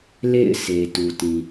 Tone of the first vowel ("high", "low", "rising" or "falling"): falling